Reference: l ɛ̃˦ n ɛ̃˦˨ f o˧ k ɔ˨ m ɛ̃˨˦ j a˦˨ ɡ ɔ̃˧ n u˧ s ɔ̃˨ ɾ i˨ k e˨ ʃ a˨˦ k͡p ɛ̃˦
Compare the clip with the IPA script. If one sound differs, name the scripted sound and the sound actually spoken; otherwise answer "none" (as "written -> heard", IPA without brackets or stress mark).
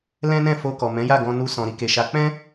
none